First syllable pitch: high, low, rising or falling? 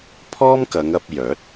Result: high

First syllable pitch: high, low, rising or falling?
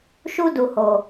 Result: high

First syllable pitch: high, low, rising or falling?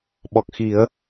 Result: low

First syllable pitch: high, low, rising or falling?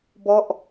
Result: falling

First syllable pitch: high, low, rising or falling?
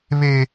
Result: high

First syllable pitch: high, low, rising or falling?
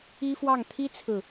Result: high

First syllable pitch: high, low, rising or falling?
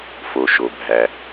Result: low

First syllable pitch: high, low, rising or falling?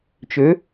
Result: rising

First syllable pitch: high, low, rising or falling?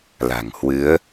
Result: low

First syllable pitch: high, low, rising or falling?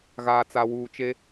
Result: low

